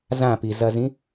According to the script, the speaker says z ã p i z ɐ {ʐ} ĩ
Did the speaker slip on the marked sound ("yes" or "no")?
yes